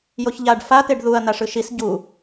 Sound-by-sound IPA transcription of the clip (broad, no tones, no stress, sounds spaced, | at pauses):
j o ç ʎ a ɖ f a t̪ e ɖ ð u ɐ̯ n̪ a ʂ ɯ ʃ i s ɟ u